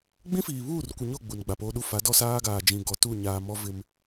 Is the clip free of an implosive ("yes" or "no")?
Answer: no